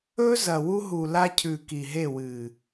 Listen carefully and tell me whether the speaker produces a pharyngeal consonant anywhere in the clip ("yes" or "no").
no